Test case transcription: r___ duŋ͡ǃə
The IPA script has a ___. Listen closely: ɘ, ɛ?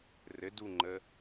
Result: ɘ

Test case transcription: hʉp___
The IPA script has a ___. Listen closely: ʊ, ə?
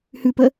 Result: ə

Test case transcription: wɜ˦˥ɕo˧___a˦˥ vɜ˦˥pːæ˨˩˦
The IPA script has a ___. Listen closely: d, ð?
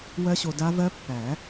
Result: d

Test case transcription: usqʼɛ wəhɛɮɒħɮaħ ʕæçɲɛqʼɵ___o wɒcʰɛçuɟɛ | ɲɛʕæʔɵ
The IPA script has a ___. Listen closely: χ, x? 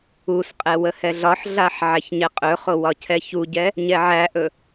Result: χ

